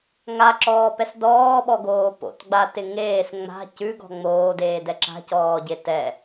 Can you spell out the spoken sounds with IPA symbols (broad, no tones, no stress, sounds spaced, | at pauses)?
ŋ a ǁ ɔː p ɛ s d ɔː ɓ ɔ ɡ oː p o̰ t ɡ͡b a t ɪ ŋ eː s ŋ͡m a̤ c ʉ ɡ ɔ̤ ŋ͡m oː d eː d ɛ ǁ a̤ c ɔː ɟ e t ɛ